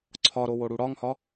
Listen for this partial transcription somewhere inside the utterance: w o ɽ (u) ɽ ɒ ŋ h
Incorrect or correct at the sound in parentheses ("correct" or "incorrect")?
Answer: correct